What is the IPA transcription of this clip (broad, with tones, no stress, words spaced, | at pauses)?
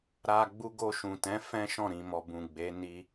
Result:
ɾa˧ ɡ͡bu˧ɡo˧ʃũ˨tɛ̃˨˦ fɛ̃˦ʃɔ̃˦˨ ɾĩ˨mɔ˨bũ˨ ɡ͡be˨˦ni˧